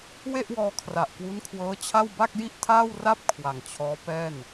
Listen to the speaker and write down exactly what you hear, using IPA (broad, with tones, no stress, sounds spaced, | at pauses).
w e˥˩ ʔ w ɔː˧ kʰ r a˨˩ ʔ k w u˦˥ n kʰ w ɤː˦˥ t͡ɕʰ a˥˩ w b a˥˩ k̚ j i˥˩ ʔ tʰ aː˥˩ w r a˥˩ p̚ kʰ w a˨˩ ŋ t͡ɕʰ ɔː˦˥ p ɛː˥˩ n